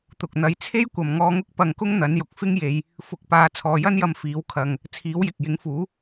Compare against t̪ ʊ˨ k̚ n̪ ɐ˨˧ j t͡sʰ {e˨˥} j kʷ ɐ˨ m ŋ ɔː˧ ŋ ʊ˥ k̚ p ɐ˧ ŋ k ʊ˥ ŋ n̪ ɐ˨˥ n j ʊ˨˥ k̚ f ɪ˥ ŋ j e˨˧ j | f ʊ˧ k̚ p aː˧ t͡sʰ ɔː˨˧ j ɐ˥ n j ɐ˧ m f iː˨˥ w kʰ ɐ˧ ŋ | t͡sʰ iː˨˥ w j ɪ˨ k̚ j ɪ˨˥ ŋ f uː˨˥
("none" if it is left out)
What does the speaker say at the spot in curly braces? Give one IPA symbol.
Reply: e˥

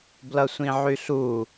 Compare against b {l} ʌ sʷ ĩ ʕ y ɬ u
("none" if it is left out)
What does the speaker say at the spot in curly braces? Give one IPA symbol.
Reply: l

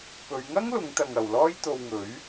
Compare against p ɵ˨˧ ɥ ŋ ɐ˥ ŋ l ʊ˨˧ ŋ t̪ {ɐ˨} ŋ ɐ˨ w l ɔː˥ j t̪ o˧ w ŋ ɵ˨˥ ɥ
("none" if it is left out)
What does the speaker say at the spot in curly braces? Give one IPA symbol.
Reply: ɐ˨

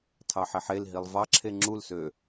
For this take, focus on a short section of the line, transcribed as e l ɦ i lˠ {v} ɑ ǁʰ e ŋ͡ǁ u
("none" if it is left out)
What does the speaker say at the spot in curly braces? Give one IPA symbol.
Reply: v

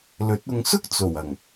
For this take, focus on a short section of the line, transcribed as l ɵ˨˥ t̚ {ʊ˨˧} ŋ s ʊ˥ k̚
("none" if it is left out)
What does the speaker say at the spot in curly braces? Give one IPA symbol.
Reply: ʊ˧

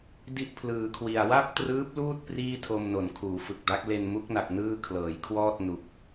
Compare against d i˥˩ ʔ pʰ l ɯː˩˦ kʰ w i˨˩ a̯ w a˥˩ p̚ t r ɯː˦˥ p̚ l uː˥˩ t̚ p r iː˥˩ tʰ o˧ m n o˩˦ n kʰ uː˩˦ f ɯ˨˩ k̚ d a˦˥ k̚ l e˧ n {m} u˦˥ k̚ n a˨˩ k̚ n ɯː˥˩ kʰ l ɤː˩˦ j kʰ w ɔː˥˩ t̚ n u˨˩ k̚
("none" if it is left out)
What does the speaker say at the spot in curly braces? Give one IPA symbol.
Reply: m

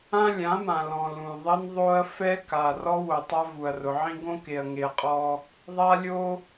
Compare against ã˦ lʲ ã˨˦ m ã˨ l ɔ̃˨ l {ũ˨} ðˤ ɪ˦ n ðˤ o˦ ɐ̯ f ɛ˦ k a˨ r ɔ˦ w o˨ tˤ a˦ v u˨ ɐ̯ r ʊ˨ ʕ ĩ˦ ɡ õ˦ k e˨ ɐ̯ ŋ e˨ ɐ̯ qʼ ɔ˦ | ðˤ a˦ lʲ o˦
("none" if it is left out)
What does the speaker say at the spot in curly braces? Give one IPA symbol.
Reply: ũ˨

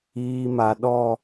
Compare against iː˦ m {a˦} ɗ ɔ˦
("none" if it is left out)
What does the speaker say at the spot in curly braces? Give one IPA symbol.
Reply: a˦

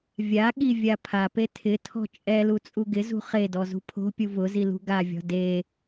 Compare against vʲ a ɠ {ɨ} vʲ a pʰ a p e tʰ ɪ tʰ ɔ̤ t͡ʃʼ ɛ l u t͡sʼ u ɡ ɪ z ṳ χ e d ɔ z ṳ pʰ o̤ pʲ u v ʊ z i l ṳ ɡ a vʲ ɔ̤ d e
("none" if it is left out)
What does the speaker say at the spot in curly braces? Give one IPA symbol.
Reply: i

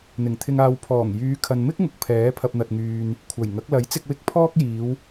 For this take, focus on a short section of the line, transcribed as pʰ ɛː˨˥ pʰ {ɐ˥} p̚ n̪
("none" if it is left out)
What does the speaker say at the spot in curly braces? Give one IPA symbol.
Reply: ɐ˧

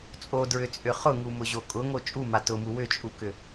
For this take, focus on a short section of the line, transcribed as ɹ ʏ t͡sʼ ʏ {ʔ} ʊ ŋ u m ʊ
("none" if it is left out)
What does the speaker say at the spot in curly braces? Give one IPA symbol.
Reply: χ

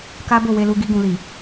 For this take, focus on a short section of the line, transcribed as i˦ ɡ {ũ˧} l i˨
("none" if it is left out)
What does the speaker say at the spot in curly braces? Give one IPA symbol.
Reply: ũ˧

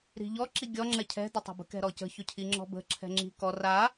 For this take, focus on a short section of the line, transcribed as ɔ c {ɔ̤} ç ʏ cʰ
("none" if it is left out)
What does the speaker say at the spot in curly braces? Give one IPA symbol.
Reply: ə̤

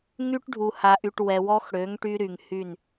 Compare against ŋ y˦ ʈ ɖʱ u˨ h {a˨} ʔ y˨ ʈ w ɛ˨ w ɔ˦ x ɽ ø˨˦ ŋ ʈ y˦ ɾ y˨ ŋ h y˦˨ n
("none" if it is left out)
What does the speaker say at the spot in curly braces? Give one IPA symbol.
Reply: a˨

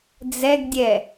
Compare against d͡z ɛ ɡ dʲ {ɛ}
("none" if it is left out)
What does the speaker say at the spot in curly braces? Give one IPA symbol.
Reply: ɛ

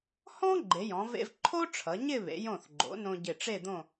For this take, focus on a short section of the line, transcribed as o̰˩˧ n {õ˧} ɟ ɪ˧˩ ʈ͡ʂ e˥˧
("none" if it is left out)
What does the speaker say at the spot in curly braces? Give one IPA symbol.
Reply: õ˧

